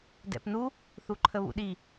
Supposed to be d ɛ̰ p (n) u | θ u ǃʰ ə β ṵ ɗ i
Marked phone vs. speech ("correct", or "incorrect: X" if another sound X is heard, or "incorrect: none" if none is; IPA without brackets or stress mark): correct